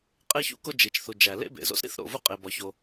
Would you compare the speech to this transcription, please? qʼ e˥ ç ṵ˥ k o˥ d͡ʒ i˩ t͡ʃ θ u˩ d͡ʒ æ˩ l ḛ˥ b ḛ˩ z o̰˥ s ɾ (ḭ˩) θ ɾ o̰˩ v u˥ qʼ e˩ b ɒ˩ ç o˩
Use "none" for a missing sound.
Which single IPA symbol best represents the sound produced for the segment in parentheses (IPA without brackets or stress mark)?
ḭ˥